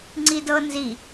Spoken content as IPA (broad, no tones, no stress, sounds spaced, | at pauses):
ŋ͡ǀ i d ɤ n z i